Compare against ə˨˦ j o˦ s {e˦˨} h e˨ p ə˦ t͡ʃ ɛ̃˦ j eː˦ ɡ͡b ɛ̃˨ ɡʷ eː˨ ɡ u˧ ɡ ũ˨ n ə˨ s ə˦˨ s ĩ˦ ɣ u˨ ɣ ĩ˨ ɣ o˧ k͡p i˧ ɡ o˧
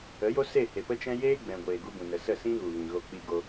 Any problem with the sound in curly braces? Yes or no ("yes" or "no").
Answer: no